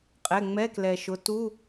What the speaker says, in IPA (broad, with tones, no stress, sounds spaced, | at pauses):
qʼ ɛ˩˧˩ ŋ͡m ɛ˧˥˧ k l ɛ˩ ʃ ʊ˩˥ t u˧˥˧